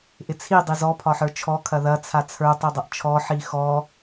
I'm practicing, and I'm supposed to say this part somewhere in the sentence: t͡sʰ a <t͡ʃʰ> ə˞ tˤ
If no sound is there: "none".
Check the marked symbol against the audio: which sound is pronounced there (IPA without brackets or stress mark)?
t͡sʰ